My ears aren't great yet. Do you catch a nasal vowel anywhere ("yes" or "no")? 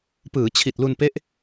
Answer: no